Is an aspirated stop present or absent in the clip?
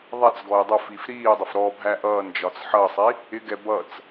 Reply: absent